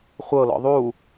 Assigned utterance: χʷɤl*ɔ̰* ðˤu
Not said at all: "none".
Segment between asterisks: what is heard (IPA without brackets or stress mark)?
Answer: ɔ̰